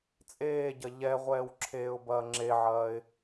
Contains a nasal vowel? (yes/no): no